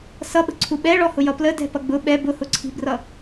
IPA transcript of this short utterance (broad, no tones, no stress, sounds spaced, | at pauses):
s ʌ ɓ ə̤ ǀʰ u ɓ ɛ ɭ ɔ h ʊ j ʌ p l ə d ɛ̤ p ʌ ɡ͡b ʊ ɓ ɛ b ʊ h ʊ ǀʰ i̤ b r ʌ